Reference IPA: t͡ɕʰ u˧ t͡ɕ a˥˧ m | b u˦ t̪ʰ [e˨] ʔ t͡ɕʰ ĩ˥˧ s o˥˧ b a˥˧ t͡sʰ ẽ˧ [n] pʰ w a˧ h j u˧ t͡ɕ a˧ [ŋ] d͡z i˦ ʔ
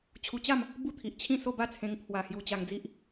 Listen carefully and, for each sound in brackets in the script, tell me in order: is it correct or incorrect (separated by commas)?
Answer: incorrect, incorrect, correct